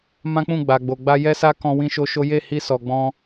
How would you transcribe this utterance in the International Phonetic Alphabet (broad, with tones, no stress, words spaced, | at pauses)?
mã˦k͡pũ˦˨ ɡ͡ba˨ɡ͡bo˨ɡ͡ba˧ jɛ˦sa˦ kɔ̃˦wĩ˦ʃo˦ʃo˦ je˦˨hi˧ sɔ˨ ɡ͡bɔ̃˧